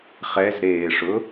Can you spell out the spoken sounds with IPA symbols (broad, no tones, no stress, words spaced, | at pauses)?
χɛzɾeːʂʊ